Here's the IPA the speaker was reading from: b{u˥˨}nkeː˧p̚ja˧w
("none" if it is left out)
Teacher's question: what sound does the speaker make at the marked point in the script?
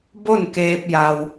o˥˨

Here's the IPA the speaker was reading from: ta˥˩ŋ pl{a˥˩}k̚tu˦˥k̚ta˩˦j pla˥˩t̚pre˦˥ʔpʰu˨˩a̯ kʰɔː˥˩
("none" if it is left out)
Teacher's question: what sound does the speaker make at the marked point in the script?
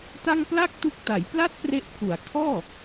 a˥˩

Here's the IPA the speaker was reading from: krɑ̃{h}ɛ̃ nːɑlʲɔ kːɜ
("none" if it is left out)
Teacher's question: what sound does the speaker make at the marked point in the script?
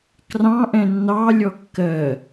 ʔ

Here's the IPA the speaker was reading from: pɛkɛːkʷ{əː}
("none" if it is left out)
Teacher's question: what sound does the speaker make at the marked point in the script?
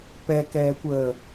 əː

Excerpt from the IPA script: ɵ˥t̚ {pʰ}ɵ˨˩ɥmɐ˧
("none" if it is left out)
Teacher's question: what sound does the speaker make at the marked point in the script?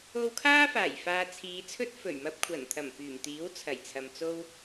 f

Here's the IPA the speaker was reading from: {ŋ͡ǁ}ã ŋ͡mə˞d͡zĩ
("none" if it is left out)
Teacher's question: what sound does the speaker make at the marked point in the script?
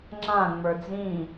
ŋ͡ǁ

